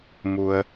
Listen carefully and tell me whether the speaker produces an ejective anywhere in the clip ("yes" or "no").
no